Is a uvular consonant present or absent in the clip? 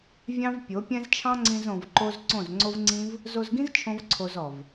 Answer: absent